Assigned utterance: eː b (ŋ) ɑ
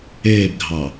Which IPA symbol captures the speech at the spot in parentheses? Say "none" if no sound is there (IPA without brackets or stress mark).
ɡʱ